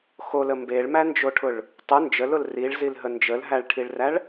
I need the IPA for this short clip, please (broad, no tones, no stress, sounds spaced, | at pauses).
x o l ə m b e ɭ m æ n d͡ʒ o ʈʰ ʊ ɭ | tˤ ʊ n d͡ʒ ə l ʊ l r i ɭ z i l ɦ ə n d͡ʒ ə l ɦ æ ɭ ʈʰ i ɭ r æ ɭ